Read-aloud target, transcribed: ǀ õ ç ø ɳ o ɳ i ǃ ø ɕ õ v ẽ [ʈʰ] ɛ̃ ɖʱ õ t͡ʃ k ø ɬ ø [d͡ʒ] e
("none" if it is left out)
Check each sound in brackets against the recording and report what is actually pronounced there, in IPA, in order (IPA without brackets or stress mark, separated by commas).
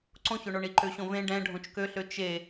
ɖ, t͡ʃ